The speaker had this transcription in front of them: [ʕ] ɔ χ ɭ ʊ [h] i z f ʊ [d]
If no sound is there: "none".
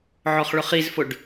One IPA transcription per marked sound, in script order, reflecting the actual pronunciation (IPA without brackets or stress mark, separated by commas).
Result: ʕ, χ, ɖ